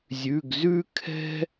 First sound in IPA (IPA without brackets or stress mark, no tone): zʲ